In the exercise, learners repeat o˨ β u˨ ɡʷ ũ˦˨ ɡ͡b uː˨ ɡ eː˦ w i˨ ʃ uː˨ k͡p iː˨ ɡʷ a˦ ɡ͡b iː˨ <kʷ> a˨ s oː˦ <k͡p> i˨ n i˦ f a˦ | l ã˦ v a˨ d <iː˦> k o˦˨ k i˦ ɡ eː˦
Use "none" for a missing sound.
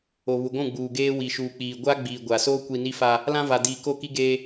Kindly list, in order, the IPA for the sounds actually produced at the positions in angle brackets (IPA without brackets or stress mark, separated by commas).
ɡʷ, kʷ, iː˨